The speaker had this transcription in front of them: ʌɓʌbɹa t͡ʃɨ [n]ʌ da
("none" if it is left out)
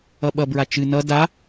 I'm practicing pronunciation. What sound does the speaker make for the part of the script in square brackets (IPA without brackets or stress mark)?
n